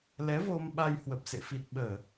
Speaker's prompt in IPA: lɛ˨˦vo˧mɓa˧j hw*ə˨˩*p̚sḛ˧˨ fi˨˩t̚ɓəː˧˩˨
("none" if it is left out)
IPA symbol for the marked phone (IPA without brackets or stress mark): ə˨˩